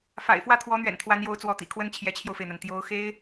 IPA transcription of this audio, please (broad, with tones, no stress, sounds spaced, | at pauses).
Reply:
f a̰˨˩ ɪ̯ f w ä˥˩ t̪ʰ w ɔ˧˥ n̪ ɥ ɛ̰˨˩ n t̪ʰ w a˧˥ n j o˧˥ ʊ̯ t͡s w ɔ˧˥ t̪ ḭ˨˩ kʰ w ə˥ n t͡ɕʰ j ɛ˧˥ t͡ɕʰ j o˧ ʊ̯ f e˩ ɪ̯ n̪ a˩ n t̪ j o˧˥ ʊ̯ x e˥ ɪ̯